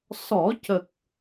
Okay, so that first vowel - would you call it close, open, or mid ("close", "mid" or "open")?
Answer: mid